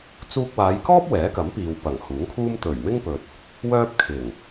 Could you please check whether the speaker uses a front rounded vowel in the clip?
yes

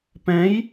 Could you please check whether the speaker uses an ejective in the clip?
no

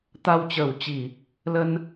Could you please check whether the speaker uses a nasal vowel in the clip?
no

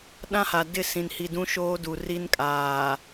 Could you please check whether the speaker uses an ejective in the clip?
yes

